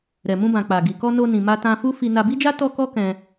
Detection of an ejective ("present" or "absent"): absent